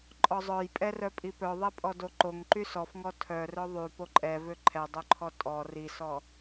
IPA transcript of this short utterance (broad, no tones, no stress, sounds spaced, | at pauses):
ǃʼ ɔ zˤ œ j pʼ ɛ r œ pʼ i p œ ðˤ ɛ pʼ ɔ d o ǃ o ŋ ǃ y s ɔ f ŋ ɔ tʰ œ r œ ðˤ y p o ǃʼ ɛ v ø ǃʰ ɛ dˤ œ ǃʰ ɔ tʼ ɔ r i s ɔ